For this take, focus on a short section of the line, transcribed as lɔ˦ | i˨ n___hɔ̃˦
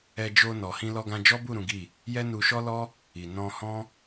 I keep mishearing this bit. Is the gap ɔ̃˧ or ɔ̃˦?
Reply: ɔ̃˧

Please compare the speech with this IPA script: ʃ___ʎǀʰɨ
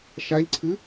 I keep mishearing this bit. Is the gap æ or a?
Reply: a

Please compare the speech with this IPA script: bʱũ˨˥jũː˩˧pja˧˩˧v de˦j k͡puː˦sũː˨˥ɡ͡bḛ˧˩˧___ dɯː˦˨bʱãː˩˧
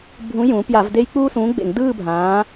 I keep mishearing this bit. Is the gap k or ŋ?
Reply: ŋ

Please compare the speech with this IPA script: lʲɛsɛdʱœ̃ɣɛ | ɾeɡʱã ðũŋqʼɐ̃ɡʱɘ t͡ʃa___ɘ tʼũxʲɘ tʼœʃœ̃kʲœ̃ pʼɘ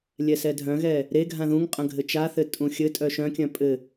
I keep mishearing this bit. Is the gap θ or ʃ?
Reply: θ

